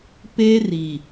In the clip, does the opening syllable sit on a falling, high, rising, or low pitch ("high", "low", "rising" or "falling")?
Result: high